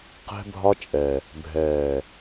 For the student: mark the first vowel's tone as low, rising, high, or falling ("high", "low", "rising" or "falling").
high